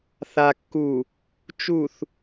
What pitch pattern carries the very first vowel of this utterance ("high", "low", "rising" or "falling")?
low